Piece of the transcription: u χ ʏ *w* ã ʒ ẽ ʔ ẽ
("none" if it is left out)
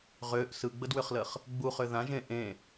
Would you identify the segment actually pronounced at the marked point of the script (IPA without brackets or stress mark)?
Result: ð